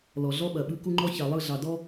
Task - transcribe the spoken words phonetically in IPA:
l ɔ˨ ɮ ɔ˦ ɓ ɐ˨ ɓ ɯ˦ k u˦ ŋ͡ǃ ɔ˦ ç ɑ˨ lˠ ɯ˦˨ ɮ ɑ˨ d ɔ˦

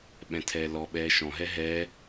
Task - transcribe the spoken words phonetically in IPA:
ɓ ɛ̃ tʰ ɛː l ɔ ɓ ɛː ʃ ɔ̃ ɦ ɛ ɦ ɛː

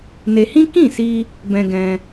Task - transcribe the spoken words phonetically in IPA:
n e˧ h ĩ˦ k ĩ˦˨ s i˧ | b ɛ̃˦ ɡ ɛ̃˦

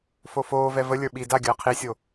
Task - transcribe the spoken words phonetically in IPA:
f o f oː v ɛ v ə lʲ ə˞ ɓ i d a ɡʲ əː qʰ i sʲ o

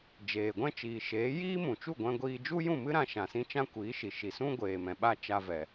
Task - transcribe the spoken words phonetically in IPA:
d͡ʒ eː˨ ɡʷ ɛ̃˦ t͡ʃ iː˨ ʃ eː˨˦ j iː˦ m ũ˨ t͡ʃ u˦˨ ɡʷ ɛ̃˧ ɡʷ iː˧ d͡ʒ u˦ j ũ˦˨ m ɨ˦ ɾ ã˧ ʃ ã˨ s ĩ˧ t͡ʃ ã˦ kʷ iː˨˦ ʃ i˨ ʃ i˨ s ũ˦ ɡʷ eː˨ m ɛ̃˨ ɓ a˦ t͡ʃ a˧ v ɛ˨

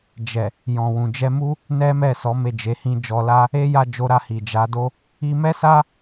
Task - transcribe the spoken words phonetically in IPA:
d͡ʒ ɛ˨ | j ɔ̃˨ w ũ˨ d͡ʒ ɛ˧ m u˦ | n ɛ˦ m ɛ˦˨ s ɔ˨˦ m e˦˨ d͡ʒ e˨˦ h ĩ˦ d͡ʒ ɔ˧ l a˦ | e˦ j a˦˨ d͡ʒ o˧ ɾ a˧ h i˨ d͡ʒ a˨˦ d o˦ | i˧ m ɛ˦ s a˦

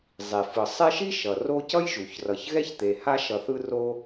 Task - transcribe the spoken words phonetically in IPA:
zˤ i˩ f ɯ˩ sˤ e˦ ʃ i˥ ʃ ʌ˩ r o˦ c ʌ˥ j ʒ u˩ ç r ʌ˨ ç ɣ ɛ˥ ç t̪ e˨ h a˦ ʃ ʌ˨ θ ɯ˦ r o˦

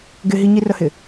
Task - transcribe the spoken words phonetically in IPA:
ɡ ɪ ɦ i ɲ i r ə h ɪ

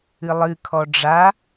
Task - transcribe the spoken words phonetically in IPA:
ɨ lˠ ɨ kʰ ɔ ɖ͡ʐ a

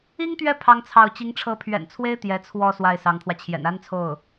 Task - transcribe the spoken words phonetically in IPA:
i˥ ŋ t̪ ɥ ɛ˥˩ pʰ ɑ˥ ŋ t͡sʰ ɑ˥˩ ʊ̯ t͡ɕ i˧˥ ŋ ʈ͡ʂʰ ɤ˧˥ pʰ ɥ ɛ̰˨˩ n t͡sʰ w e˥ ɪ̯ t̪ j ɛ˧˥ t͡sʰ w ɔ˥˧ s w a˥˩ ɪ̯ s ɑ˧˥ ŋ t̪ʰ w ä˧ t͡ɕʰ j ɛ̰˨˩ n a˥ n t͡sʰ o˥˩ ʊ̯

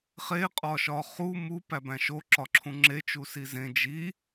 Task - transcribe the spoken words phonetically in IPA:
χ e qʼ ɒ ʃ ɒ χ u m u p æ b æ̃ ʃ o ǁ ɒ ǁʰ ũ ŋ͡ǁ e t͡ʃ u s i z ẽ d͡ʒ i

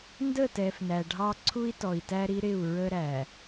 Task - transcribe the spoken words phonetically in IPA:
n d ə˦˨ t ɛ˨ f n æ˨ ɖʱ ɑ˦ ǀʰ u˦ i̯ t ɔ˨ i̯ t æ˦ ɾ i˦ ɾ ɪ˦˨ u̯ ɹ ə˦ ɾ æ˨

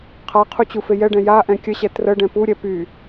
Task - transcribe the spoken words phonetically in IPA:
qʰ a qʰ u t͡ɕ u f e j ɛ ɖ ɛ̃ j a ʔ ɛ̃ kʲ ə ɕ ɛ t r ə ɖ ɛ̃ p u ɾʲ ɛ p y

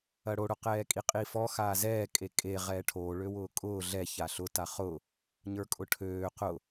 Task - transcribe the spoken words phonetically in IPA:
ɐ ɽ o ɽ ʊ q ɛː kʼ i qʼ i f ɔ x aː z ɛː kʼ e kʼ e ʁ ɛː ʈʰ oː ɭ ø w ʊː kʼ ʊː ɮ ɛ ç a ɬ ʊ t a χ ʊ | ɲ ə˞ kʼ ʊ ʈʰ øː q ʊ

